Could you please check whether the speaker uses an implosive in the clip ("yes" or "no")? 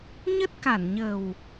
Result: no